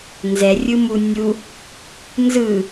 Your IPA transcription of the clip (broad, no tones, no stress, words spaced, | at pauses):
nzɛrʲɯmu nʲu | nzɯ